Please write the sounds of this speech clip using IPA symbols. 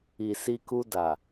i˨si˧ku˧ da˨

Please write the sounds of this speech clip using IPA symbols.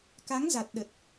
ka˨˦ŋza˨˩t̚ɗə˨˩t̚

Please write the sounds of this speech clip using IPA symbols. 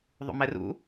ðˤṵmɛrṵ

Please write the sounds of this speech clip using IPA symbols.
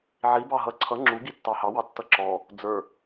ʕi bɑɦʌ ǀʰʌ ŋ͡ǁu ɡitːɑhɑ wɑtːʌǁɔ | d͡zə˞

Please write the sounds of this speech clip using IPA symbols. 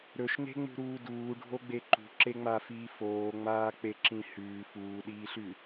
ɾɵʃne̤ŋ͡mṳɾuː duːɖʱoɡ͡be ǃṳǁeŋ͡mafiː foːŋ͡maːk͡peǁĩ hʉː fuːɗiːɬʉ

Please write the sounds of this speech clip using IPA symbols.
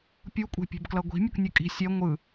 pʲukʷʼe̤pʲe̤bklʌ ɡʷi̤ mʲʌknʲɯkʼi̤ sʲɛ ŋʷɯ

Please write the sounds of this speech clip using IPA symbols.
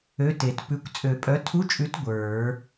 ø˧˥˧te˨˩˦tpʉ˧˥˧kʷ t͡sʼø˨˩˦pʼœ˨˥tʰu˧˥˧t͡ʃʼʉ˨˥t ɡʷə˞˨˩˦

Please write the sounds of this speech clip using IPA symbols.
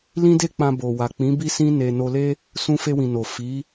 lĩ˦de˦k͡pã˧ bo˨wa˨k͡pĩ˨˦ bi˦sĩ˦ ne˧ no˧le˦ | sũ˧fe˧wĩ˨no˨ fi˨˦

